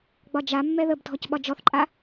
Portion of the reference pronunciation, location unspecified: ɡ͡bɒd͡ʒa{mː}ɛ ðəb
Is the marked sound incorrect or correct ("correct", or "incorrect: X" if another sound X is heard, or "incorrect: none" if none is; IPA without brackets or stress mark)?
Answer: correct